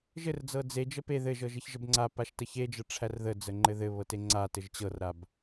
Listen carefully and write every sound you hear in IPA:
ʒɘrd͡zɤ d͡zed͡ʒə pe ðɘʒɤʒɘç ʒəbŋ͡ǀa paʃtəçed͡ʒɤ ʈ͡ʂʰærðəd͡zəŋ͡ǃɘ ðɘβɤte ŋ͡ǀatɘʒ t͡ɕɤrɾab

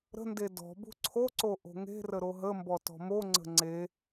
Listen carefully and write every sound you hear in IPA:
ɾə̤nde dɔ̤ bṳǀʰoǀo ʔo̤ŋe̤rə ɾoɦəmbɔ tɔ̤moŋ͡ǀə̤ ŋ͡ǀe

